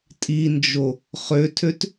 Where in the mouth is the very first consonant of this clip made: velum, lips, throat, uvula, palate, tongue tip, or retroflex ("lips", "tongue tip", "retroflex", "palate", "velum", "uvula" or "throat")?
tongue tip